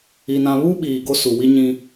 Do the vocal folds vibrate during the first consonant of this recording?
yes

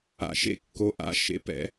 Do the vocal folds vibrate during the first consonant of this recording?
no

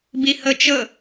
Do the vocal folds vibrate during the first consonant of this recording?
yes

